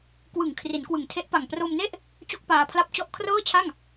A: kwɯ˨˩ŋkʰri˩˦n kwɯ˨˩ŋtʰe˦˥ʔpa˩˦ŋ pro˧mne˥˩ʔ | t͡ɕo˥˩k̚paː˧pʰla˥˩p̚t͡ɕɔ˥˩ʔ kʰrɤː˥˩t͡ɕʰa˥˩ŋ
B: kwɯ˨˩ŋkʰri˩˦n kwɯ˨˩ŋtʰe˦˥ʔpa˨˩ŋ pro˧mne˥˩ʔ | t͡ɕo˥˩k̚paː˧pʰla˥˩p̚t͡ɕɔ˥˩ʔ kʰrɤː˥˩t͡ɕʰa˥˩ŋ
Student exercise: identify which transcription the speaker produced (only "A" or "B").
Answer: B